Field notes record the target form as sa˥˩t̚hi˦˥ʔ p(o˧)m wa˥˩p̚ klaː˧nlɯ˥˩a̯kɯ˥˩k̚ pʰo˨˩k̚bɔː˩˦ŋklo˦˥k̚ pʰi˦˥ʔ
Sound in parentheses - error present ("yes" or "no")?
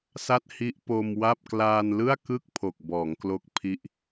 no